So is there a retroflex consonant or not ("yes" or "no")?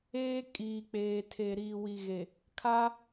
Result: no